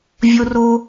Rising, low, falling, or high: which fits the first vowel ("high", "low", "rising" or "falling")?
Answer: high